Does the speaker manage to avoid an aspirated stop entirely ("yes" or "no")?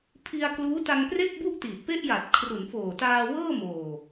no